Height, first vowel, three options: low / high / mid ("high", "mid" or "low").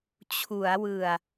high